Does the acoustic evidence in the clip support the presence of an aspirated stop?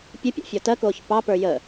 no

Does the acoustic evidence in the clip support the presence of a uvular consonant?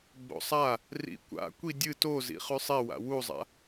yes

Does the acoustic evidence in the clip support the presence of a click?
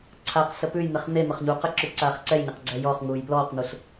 yes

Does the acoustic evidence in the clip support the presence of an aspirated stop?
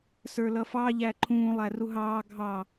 yes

